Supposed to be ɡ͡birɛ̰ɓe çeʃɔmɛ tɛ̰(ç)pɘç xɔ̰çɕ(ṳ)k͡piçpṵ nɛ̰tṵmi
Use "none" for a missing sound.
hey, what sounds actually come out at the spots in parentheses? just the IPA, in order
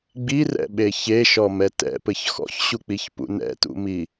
none, u

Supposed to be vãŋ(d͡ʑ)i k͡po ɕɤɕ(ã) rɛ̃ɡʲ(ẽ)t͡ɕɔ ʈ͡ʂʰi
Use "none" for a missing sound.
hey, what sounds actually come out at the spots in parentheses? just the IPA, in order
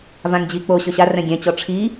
d͡ʑ, a, ɛ̃

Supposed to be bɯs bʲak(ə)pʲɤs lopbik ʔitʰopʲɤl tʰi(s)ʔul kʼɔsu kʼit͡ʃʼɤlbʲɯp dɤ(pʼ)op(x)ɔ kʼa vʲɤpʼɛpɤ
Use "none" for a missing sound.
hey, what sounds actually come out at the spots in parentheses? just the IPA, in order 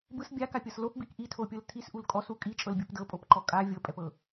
a, s, pʼ, ǃ

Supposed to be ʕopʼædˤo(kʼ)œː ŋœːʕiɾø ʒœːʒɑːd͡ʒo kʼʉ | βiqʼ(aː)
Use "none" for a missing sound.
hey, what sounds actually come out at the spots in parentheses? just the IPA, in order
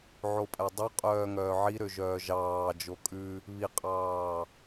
qʼ, ɑː

